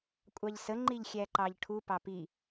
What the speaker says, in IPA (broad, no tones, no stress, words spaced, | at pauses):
kʷʼɑʎsə ŋ͡ǃiʎxʲæǃɑʎʈʰu pɑpi